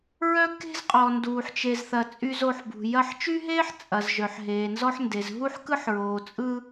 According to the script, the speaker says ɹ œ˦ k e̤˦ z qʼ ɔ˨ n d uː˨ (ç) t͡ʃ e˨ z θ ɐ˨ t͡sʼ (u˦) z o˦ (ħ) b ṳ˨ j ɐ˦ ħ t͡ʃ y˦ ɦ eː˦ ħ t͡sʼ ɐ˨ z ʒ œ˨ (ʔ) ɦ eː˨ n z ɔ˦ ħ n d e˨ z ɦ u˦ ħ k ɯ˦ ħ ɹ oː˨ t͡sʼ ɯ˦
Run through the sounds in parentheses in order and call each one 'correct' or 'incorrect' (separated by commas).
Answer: incorrect, incorrect, correct, incorrect